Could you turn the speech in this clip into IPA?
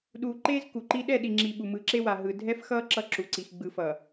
ɗuː˨ǃeː˦z ku˨ǃi˦ ɗɛ˦˨ɗi˨ŋ͡ǁi˨ ɓu˨mɯ˨˦ǁe˦wa˨ ɦɯ˨dʱɛ˦fxʌː˦ ǁʌ˦ǁu˨ǀi˨x ɡ͡bɯ˨fʌː˨

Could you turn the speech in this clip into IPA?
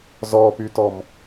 zɔpytɔm

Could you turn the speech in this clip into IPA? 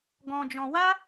ɡɔ̃˧d͡ʒɔ̃˧ wa˦

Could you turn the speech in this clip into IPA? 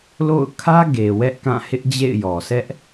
lo̰˦˨ʊ̯ kʰä˦ ɡe˨ wɛ˦ʔkã˦˨hɪ˦ʔd͡ʑḛ˦˨ɪ̯ jɔ˨sɛ˦ʔ

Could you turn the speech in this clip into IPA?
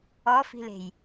ɔfi̤le̤j

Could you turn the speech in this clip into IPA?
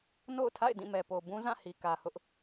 no̰˦˨ʊ̯tʰa̰˦˨ɪ̯ dĩ˦˨mɛ˨po˨ bũ˦zã˦˨hi˨ kä˨hʊ˦ʔ

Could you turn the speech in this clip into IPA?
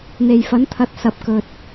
n̪e˨jfɐ˨˥nt̪ʰɐ˨˥t̚ sɐ˨p̚kɵ˨t̚

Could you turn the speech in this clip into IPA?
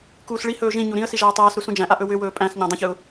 kuːsɭihɵː ʒĩ ɲuɾĩə̯si ʒaːtˤaːsɾu sũd͡ʒæ̃ʔa ʔɵwʏwɵː pʼæ̃sɲã dˤə̃çɯʊ̯

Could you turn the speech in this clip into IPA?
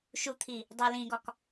ʃut̪ʰi | dˤelĩɡɒk

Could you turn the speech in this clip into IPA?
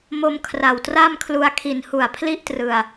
mo˦˥mkʰra˨˩wtra˥˩mkʰlu˧a̯ kʰi˨˩nhu˨˩a̯ pʰli˥˩ʔtrɯ˨˩a̯

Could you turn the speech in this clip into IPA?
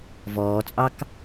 vɔːt͡sʼɑk

